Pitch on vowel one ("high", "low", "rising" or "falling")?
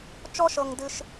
high